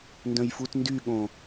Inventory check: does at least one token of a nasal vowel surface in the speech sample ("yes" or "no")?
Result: yes